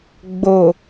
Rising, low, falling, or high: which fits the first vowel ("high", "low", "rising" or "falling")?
low